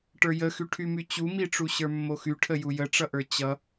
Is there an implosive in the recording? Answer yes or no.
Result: no